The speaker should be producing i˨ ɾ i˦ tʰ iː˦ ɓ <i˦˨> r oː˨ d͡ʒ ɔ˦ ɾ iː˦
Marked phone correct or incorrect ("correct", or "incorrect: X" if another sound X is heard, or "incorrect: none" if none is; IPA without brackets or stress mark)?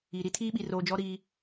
incorrect: i˨